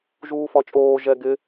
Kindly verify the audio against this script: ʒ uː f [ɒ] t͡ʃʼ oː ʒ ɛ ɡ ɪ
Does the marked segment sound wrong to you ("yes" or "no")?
no